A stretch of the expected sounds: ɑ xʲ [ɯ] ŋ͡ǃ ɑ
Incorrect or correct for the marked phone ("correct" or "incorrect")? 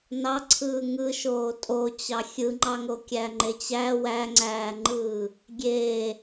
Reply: correct